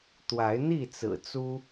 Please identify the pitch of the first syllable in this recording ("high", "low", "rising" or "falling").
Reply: rising